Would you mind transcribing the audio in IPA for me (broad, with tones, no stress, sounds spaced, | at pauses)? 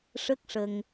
ʂ ə˦˥ k̚ ʂ ə˧ ŋ